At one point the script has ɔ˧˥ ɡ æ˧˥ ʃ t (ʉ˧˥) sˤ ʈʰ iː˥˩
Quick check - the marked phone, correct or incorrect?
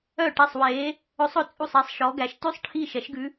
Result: incorrect